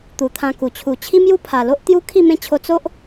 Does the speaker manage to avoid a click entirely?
yes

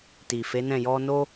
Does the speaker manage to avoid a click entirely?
yes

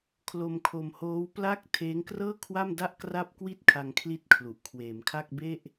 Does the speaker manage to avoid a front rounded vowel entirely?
yes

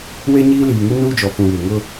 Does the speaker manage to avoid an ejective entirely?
yes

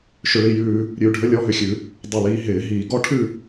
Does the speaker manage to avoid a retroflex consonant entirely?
no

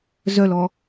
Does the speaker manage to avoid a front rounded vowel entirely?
no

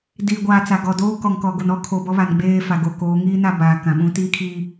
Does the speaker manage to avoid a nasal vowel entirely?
no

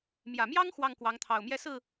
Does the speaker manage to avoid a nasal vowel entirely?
yes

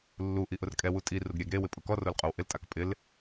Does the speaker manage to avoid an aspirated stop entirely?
yes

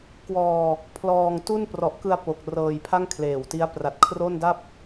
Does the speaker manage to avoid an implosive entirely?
yes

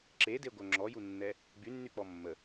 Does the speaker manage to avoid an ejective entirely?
yes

